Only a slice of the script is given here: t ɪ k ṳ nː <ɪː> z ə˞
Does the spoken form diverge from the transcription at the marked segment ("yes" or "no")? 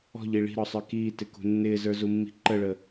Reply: no